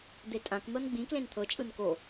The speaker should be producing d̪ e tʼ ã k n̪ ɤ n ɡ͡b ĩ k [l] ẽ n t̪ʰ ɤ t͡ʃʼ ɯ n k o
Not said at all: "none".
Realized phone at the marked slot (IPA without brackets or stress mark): l